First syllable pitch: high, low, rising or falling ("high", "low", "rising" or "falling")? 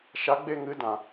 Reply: rising